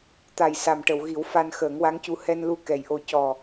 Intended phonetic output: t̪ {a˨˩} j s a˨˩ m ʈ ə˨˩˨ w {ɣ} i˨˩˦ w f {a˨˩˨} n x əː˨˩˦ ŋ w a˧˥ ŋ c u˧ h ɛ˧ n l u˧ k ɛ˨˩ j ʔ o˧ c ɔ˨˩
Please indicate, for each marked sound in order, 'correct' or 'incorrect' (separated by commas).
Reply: correct, correct, incorrect